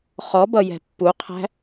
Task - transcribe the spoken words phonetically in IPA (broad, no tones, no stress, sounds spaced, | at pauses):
χ ɔ b ʌ j ɛ̤ pː u qʰ æ̤